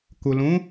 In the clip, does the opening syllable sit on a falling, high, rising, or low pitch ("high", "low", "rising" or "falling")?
low